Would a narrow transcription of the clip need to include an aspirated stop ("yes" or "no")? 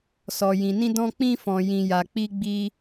no